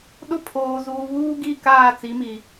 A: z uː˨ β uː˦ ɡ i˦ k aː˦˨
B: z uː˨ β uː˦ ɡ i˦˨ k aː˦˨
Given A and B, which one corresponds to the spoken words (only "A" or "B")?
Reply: B